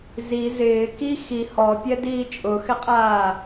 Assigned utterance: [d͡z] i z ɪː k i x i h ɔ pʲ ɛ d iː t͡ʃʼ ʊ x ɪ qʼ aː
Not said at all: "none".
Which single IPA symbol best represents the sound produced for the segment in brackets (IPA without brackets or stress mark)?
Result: z